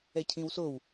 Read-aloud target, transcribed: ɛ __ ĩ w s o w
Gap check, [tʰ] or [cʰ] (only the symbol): cʰ